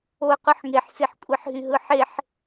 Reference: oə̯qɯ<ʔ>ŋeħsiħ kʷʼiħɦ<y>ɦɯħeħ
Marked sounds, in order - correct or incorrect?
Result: incorrect, correct

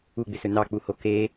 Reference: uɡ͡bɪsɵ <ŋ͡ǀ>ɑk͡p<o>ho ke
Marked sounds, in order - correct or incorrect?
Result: incorrect, incorrect

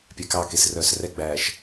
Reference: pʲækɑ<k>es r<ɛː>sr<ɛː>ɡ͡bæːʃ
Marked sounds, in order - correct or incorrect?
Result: correct, incorrect, incorrect

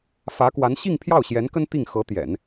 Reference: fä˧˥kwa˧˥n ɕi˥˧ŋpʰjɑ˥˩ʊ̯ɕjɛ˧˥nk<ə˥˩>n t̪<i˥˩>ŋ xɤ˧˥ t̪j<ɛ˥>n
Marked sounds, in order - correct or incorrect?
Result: incorrect, correct, incorrect

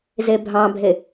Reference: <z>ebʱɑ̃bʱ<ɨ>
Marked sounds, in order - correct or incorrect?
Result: correct, incorrect

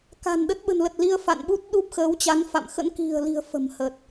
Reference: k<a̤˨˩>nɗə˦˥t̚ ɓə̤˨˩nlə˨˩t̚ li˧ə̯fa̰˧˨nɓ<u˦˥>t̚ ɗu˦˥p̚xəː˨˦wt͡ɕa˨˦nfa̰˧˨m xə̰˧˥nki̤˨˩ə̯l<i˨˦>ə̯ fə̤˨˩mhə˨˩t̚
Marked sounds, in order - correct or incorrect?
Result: correct, correct, incorrect

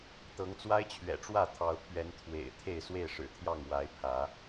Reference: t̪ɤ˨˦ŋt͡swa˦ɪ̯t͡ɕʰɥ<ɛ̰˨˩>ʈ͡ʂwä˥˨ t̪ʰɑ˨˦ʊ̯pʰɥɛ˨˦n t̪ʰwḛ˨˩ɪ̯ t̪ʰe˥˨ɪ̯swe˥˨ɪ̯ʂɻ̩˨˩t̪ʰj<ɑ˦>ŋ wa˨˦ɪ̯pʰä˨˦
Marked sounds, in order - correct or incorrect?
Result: correct, incorrect

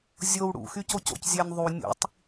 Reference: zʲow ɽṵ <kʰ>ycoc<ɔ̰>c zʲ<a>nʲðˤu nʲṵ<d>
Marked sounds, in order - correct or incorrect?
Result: incorrect, incorrect, incorrect, incorrect

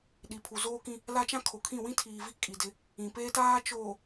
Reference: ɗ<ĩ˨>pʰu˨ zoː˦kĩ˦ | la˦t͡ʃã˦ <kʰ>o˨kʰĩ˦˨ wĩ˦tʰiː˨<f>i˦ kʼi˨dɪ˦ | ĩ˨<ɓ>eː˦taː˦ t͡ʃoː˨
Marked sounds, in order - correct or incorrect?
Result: incorrect, correct, incorrect, incorrect

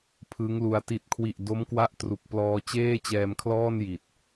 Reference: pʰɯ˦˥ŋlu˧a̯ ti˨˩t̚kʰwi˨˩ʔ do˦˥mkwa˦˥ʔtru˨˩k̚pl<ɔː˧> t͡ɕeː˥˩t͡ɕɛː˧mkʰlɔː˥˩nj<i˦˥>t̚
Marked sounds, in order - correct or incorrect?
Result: correct, incorrect

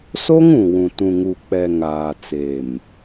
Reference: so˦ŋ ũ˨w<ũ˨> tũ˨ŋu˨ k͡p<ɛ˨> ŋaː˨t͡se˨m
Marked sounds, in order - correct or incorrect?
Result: correct, correct

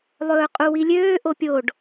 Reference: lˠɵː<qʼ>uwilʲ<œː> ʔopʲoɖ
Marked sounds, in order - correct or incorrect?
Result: correct, incorrect

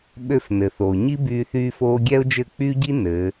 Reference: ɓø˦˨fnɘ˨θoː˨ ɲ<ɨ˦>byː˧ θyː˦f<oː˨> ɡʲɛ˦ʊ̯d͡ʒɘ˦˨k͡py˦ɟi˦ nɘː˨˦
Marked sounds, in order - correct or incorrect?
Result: incorrect, incorrect

